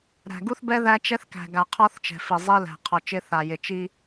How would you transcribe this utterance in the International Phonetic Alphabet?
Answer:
ɾæ̤˨ ɡu˦θbɛ˦ ðæ˦t͡ʃɛ˦θkæ̤˨ ɡa˨ qʰɔ˦θt͡ʃɛ̤˨fi˨ zˤi˦læ̤˨ qʰɔ˨t͡ʃɪ˦θa˨ jɪ˨t͡ʃi˦

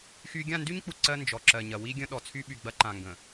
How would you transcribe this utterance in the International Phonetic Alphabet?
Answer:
xy˦ ɡʲã˦˨ndy˦ɲk͡pu˨ ǀɜ˦ nd͡ʒɔ˨ ǁɜ˨ɲɐ˨wi˦ ɡʲə̃˦ɗɔ˨ t͡sʰy˦ɓy˨ɡ͡bɐ˦ ǃã˨ŋɡə̃˨

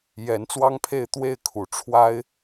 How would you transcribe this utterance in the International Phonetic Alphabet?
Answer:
jɛ˧˥nt͡swɑ˥ŋpʰe˥˧ɪ̯ t̪we˥˩ɪ̯kʰu˨˩ ʈ͡ʂʰwa˥ɪ̯

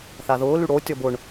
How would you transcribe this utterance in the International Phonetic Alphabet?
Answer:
θaðʊːly ɽo tʲɔbʊɳ

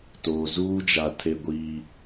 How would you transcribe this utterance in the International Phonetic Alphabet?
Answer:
toː˨ zuː˦d͡ʒa˨ tʰe˦ɡʷiː˦

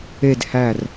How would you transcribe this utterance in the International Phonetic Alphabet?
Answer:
ed hær

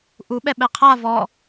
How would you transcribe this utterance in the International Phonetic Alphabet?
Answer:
ʔuɓɛɓɛ qʰa vɔ

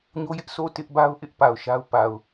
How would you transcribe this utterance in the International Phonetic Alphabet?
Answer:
ɲo˦jɪ˦ʔ so˦˨ tɪ˦ʔba˦ʊ̯ʔɪ˦ʔ pa˨ʊ̯ʃa˦ʊ̯pa˨ʊ̯

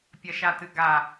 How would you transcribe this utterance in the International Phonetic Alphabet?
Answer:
pʲɐʃatɨɡa

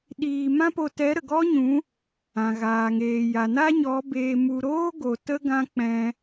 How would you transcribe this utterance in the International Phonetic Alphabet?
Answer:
ɗiː˧mã˦po˧ tɛ˨˦ɾə˨ ɡɔ˦ɲũ˨˦ | ã˨ɣaː˨ŋeː˨ ja˨na˦ɲɔ˨˦ beː˧mu˧ ɾoː˦ɡo˨ tə˦ɡã˦k͡pɛ̃˧

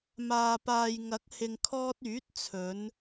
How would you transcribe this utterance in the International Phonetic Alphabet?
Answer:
maː˨paː˨j ŋɐ˨˥k̚ hɪ˨ŋkʰɔː˧t̚ yː˨˥t̚t͡sʰɵ˨˧n

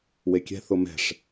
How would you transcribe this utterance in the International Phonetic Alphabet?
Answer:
wekʲɛ̤ θʊmɛ̤ʂ

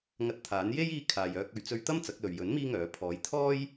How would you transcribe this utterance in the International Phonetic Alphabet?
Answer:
ŋɐ˧t̚t̪ʰaː˨˥n je˥jiː˧ kʰaː˨jœː˧k̚ ɵ˨ɥt͡sɵ˧ɥt̪ɐ˥m t͡sɐ˨˥k̚lɵ˨ɥ jɵ˨˥n miː˥ŋœː˨˥ pʰɔː˨˥j t̪ʰɔː˥j

